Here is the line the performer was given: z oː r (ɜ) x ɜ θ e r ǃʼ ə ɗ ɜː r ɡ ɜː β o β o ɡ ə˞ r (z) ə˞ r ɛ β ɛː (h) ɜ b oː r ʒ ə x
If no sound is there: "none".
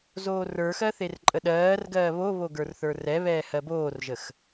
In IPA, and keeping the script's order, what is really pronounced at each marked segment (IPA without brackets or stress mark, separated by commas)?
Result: ə˞, θ, h